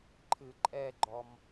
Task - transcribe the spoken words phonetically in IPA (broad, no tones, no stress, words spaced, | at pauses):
ǃʰɨǃʼɛɡ͡ǃɔm